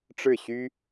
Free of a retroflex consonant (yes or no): no